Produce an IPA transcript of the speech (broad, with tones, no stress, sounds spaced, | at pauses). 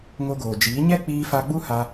ŋ o˧ ɡ oː˨ d͡ʒ iː˨˦ ɲ ɛ˦ k͡p iː˧ f a˧ ɡ͡b u˦ h a˧